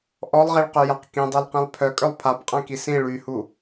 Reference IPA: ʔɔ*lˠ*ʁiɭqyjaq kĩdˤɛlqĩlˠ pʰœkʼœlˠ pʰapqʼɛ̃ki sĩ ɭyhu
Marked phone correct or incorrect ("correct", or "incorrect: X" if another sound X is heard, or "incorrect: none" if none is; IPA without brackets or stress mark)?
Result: correct